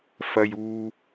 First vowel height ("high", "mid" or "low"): low